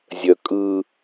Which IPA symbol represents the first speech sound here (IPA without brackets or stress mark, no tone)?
zʲ